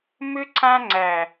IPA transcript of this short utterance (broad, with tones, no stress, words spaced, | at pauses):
mʏ˧ǀʰã˧ŋ͡ǀæ˨